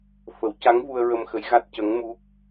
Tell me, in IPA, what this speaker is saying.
f ə˨˩˦ w c a˧˥ ŋ v u˧ ə̯ ɹ ə˧ m x ə˧˥ j ɣ a˦˥ t̚ c ə˧˥ ŋ m u˦˥ k̚

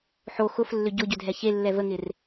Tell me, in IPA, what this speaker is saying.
ħ o x ʊ f lː ʏ ɟ ʊ ɟ ʏ dʱ ɛ ç e lː ɛ v ə ŋ ɪ r

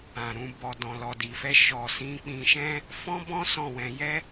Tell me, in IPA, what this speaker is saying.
ã˨ ɾ ũ˧ b ɔ˨ d ɔ̃˨ l ɔ˨ d i˨ f ɛ˧ ʃ ɔ˨ s ĩ˧ k͡p ĩ˧ ʃ ɛ̃˦ | f ɔ̃˦ b ɔ̃˦ s ɔ̃˦˨ w ɛ̃˧ j ɛ˦

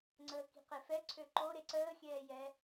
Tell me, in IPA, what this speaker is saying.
ŋ͡ǀ əː k i̤ q e f ɛ ǀʰ ø ǃ o ɾ e ǀ əː xʲ ɛː j ɛ

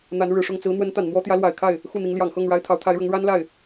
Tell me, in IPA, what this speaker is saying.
n̪ a˧˥ n ɻ ɻ̩˨˩ ʂ ʊ˥˩ ŋ t͡s ɹ̩˧˥ n̪ w ə˧˥ n t̪ a˨˩ n n̪ w ɔ˥ t̪ j ä˧˥ l w a˨˩ ɪ̯ kʰ a˥˩ ɪ̯ | x u˥˩ n̪ i˧˥ ŋ l j ɑ˨˩ ŋ x ɤ˥˩ ŋ ɻ a˥ ɪ̯ t̪ʰ ɑ˧˥ ʊ̯ t̪ʰ a˧˥ ɪ̯ ɻ ʊ˧˥ ŋ ɻ a˥ n l a˥˩ ɪ̯

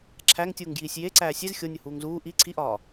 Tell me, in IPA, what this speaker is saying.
ǁʰ æ ŋ tʲ uː ŋ ɡ j iː sʲ j e ǀ æː sʲ e z xʲ o nʲ u h uː ŋ z uː ʔ i ǀʰ i ʔ ɒː

